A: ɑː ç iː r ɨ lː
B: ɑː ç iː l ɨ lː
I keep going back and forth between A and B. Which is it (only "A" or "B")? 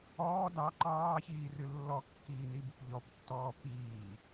A